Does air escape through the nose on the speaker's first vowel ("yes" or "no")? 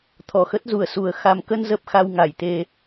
no